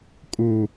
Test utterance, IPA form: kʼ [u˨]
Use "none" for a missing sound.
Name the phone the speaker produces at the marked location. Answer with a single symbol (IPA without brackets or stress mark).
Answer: u˨